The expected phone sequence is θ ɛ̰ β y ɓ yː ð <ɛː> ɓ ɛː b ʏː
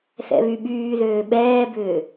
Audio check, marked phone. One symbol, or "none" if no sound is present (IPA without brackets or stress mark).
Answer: øː